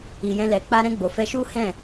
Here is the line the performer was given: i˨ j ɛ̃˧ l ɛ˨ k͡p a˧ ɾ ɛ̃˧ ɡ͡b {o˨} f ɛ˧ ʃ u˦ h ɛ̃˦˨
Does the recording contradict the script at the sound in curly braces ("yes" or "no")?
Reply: no